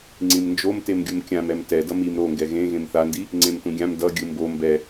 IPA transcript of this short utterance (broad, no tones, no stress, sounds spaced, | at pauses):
ŋ͡ǀ ĩ m n d͡ʒ o m t e m ɡʲ u m kʲ ã m ɛ m t ɛ d ʌ m i m ɾ o ŋ ɡ ɛ ɣ ẽ ɣ ẽ m θ a n d i | ŋ͡ǀ ẽ m t ũ ɡʲ ã m d ʌ ɡʲ ɯ m b o m b ɛ